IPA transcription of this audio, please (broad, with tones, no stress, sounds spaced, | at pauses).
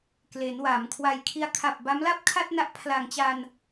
k l e˩˦ n w a˩˦ m kʰ w a˧ j kʰ i˦˥ a̯ kʰ a˨˩ p̚ b a˦˥ m l a˥˩ p̚ kʰ a˥˩ t̚ n a˦˥ ʔ pʰ l a˨˩ ŋ t͡ɕ a˧ n